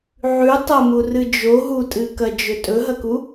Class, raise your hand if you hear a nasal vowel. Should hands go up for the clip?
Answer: no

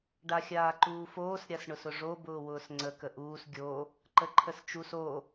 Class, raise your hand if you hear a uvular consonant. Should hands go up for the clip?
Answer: no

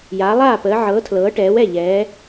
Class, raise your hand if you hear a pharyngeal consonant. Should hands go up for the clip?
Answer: yes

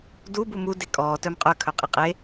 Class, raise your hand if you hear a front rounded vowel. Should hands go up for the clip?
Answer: yes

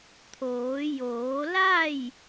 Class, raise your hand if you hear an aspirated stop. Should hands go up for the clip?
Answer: yes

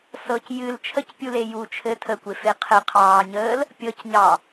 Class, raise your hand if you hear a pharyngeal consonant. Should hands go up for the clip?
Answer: no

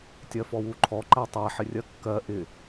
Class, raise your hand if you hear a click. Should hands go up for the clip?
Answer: yes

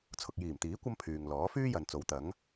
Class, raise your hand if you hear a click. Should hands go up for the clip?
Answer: no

